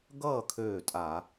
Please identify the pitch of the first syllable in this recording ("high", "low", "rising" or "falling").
falling